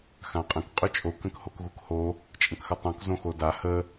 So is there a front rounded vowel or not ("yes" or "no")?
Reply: no